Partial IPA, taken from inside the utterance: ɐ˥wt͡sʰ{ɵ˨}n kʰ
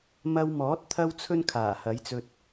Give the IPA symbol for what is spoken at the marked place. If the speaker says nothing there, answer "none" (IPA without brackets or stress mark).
ɵ˥